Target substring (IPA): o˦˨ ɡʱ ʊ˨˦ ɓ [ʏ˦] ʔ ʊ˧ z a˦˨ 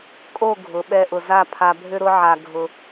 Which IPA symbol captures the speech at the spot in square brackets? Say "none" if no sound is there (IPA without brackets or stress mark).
ɛ˦